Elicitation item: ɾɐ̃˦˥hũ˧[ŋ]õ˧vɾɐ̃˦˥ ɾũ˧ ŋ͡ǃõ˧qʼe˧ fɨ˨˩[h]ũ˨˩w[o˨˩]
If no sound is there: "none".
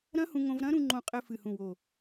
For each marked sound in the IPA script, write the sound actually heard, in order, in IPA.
ŋ, h, o˨˩

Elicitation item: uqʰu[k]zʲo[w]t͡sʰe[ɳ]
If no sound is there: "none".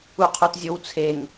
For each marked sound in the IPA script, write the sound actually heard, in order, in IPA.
t, w, ŋ

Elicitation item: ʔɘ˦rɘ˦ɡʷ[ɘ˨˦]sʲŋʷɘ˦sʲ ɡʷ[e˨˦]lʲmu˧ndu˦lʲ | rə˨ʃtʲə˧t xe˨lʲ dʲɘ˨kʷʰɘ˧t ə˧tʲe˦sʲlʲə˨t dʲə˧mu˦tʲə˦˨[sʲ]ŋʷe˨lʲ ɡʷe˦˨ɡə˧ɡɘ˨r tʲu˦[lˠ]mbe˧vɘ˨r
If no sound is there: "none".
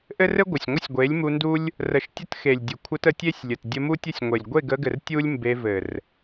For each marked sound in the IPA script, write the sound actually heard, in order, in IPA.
ɘ˨, e˨˦, sʲ, lʲ

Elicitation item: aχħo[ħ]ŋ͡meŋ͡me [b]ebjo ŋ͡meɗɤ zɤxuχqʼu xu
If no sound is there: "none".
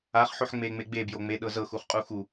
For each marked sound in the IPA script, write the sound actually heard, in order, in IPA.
ħ, ɡ͡b

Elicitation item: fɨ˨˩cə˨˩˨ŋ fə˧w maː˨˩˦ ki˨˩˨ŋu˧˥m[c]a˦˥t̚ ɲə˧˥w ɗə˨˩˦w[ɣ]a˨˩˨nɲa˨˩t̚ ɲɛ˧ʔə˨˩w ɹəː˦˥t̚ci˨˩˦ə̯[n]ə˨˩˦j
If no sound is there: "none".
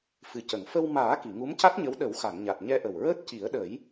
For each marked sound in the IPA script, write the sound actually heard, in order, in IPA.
c, x, ɗ

